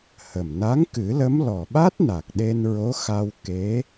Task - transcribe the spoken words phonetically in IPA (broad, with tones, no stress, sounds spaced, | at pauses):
h ə˨˩ m n a˧˥ ŋ k ɨ˨˩˦ l ə˧˥ m l ɔ˨˩ ɓ a˦˥ t̚ n a˨˩ k̚ ɗ e˧ n ɹ o˧˥ x a˧ w k e˧˥